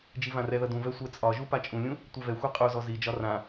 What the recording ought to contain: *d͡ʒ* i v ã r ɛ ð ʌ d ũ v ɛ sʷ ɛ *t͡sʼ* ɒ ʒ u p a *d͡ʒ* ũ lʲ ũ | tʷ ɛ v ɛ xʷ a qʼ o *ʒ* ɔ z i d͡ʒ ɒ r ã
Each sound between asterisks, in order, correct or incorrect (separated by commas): correct, correct, incorrect, incorrect